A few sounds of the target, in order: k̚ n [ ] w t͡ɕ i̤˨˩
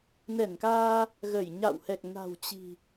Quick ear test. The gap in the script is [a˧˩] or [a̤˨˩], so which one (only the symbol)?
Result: a̤˨˩